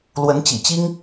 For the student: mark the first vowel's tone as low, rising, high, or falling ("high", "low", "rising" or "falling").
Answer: rising